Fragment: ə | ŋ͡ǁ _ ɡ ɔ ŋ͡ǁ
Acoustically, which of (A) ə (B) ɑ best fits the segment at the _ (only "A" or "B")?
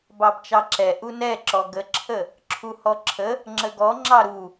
A